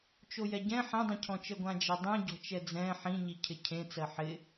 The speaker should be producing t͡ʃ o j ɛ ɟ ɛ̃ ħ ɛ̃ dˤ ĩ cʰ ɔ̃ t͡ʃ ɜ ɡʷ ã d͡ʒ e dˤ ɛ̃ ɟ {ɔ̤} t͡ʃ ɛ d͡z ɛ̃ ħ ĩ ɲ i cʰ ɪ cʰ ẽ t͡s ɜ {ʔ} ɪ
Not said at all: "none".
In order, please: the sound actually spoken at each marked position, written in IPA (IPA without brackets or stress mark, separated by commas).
ɔ̤, ħ